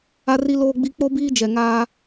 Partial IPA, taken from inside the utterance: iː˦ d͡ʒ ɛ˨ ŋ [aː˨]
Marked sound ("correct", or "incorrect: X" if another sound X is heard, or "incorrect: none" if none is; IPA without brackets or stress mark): incorrect: aː˦